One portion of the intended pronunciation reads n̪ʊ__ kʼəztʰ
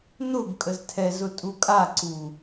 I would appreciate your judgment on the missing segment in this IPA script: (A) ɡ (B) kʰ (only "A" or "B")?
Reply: A